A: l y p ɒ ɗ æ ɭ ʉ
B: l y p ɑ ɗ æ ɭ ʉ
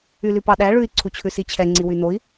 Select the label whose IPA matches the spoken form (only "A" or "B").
B